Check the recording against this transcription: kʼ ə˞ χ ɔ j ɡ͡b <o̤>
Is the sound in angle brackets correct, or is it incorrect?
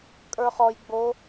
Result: incorrect